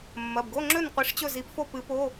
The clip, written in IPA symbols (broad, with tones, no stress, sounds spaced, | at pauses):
mː ɐ˩˧˩ b ɡ o˧˥˧ ŋ͡ǁ ɵ˥˨ n qʷ i˨˥ ʂ t͡ɕ ɵ˥˨ z i˨˥ p f o˥˨ p ɨ˨˥ p o˧˥˧